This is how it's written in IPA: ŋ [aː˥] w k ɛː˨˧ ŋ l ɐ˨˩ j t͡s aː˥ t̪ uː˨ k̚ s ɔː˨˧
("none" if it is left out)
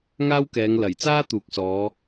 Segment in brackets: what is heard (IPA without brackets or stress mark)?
aː˥